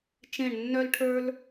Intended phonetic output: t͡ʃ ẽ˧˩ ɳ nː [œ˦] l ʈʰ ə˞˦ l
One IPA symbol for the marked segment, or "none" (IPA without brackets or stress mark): œ˦